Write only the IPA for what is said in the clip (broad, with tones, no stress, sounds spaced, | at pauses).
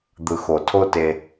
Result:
d̪ ɯ˨ x o˨ tʰ o˦ t e˧